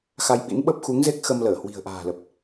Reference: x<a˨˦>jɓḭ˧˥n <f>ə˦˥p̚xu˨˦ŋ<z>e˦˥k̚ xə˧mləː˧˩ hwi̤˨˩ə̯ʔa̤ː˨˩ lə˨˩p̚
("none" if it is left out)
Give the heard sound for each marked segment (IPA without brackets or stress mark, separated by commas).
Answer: a˧, ɓ, z